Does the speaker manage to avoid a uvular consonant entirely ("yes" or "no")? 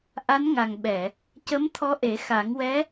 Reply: yes